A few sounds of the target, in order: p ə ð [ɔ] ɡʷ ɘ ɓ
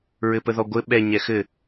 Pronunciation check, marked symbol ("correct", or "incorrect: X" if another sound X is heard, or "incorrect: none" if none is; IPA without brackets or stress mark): correct